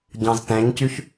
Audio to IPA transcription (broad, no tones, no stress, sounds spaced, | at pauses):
ɟ ɑ̃ z t ɛ̃ ɲ c y ç